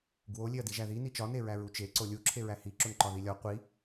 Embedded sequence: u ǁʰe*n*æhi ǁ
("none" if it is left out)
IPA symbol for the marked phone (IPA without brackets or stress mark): ɹ